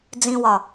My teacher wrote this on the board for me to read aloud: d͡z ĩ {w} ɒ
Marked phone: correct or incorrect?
correct